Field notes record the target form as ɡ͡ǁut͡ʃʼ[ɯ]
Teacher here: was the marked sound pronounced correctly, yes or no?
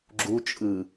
yes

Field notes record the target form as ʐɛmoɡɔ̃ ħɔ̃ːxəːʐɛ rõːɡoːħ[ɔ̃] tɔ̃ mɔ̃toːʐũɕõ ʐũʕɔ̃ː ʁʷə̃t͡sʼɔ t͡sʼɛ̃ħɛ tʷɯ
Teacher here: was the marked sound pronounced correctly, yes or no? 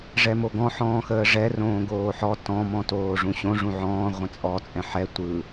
no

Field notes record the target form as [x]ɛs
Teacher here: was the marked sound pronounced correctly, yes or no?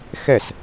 yes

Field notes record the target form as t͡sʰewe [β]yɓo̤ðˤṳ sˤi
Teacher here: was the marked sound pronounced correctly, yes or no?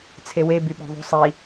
no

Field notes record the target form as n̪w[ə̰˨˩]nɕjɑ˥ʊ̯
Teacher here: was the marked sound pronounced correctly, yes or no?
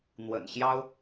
yes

